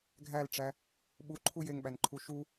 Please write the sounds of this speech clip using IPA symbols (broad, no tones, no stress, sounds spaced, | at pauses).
ɡʱ æ l ʈ͡ʂ æ | ɓ u ǃʰ u j e ŋ ɓ æ n ǃʰ u ʃ u